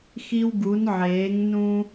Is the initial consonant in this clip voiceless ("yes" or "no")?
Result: yes